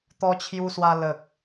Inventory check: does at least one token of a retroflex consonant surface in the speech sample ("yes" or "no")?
no